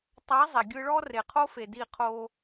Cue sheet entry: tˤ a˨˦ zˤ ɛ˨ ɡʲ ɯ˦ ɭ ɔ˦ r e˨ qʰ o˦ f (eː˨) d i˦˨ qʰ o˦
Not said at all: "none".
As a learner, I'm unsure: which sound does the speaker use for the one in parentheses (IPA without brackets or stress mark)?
e˨